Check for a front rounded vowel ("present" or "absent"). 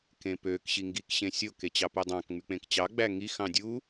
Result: present